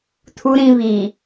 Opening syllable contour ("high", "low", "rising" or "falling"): low